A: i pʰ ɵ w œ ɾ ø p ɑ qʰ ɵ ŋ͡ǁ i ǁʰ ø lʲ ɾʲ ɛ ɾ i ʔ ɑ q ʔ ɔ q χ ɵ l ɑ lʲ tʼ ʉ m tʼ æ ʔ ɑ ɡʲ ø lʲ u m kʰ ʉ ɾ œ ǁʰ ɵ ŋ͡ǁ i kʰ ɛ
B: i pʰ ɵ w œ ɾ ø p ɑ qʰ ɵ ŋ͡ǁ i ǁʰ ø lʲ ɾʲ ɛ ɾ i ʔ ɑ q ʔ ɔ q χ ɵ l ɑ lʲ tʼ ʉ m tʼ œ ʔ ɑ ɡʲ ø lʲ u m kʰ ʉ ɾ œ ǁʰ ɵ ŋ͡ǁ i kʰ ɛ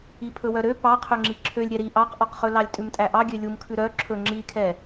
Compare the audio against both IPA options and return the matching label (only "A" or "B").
A